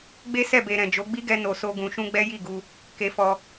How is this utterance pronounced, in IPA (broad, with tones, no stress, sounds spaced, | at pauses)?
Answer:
ɡ͡b e˦ s ɛ˦˨ b e˨ ɾ ɛ̃˨ d͡ʒ o˨˦ ɡ͡b i˦ ɡ ɛ˧ n o˨ s o˧ ɡ ũ˨ ʃ ũ˧ ɡ͡b ɛ˦ j i˦˨ ɡ u˧ | k e˧ f ɔ˧